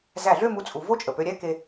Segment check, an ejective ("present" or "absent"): present